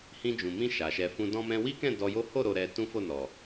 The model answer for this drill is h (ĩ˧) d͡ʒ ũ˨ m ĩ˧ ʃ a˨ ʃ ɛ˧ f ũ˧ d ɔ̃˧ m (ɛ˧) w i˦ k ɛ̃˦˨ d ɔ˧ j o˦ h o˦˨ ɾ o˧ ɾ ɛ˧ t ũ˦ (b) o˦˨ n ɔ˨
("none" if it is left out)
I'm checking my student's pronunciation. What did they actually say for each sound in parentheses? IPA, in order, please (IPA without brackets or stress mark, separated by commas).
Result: ĩ˧, ɛ̃˧, f